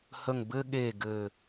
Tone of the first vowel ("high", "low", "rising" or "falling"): low